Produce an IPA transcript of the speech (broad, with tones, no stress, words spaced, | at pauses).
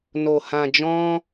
no˨hã˨ d͡ʒɔ̃˧